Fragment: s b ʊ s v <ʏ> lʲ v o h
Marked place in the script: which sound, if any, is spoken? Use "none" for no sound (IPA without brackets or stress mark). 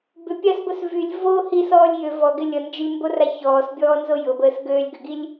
y